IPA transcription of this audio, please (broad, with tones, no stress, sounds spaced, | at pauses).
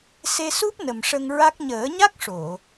s e˧ s u˦˥ p̚ n ə˨˩ m ʂ ə˧ ŋ ɹ a˦˥ k̚ ɲ əː˨˩˦ ɲ a˦˥ k̚ ʂ o˨˩˨